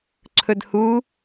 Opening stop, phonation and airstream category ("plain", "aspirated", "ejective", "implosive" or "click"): click